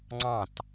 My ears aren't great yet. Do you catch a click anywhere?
yes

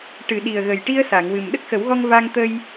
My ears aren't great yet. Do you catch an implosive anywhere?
yes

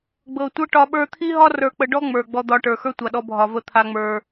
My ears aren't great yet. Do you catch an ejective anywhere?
no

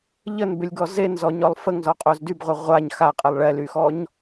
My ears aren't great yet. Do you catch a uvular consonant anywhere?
yes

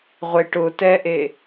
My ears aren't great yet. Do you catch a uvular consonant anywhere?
yes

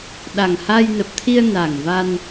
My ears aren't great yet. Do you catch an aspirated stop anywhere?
yes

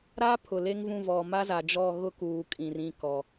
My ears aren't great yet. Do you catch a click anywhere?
no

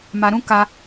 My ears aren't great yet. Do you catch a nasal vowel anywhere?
yes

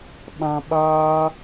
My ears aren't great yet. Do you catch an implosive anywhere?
yes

